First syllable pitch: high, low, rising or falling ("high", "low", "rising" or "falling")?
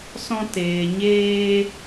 high